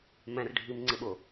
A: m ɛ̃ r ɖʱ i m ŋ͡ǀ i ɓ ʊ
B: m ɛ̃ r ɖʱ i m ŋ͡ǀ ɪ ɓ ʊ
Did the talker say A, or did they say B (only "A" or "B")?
B